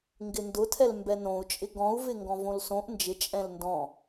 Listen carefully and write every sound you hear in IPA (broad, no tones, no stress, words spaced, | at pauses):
ŋɡɪndʊtʰɛl mbɛnõu̯t͡ʃʼɪ ɡɔ̃u̯vɪŋɡɔ̃ võlsõʔ nd͡ʒɪ t͡ʃʼɛ̃lndɔ̃